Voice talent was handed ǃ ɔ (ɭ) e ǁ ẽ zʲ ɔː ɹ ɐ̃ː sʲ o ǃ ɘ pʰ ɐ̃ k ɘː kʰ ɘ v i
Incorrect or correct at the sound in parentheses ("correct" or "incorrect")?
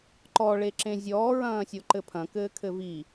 correct